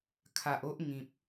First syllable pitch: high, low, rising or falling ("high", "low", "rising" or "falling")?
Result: low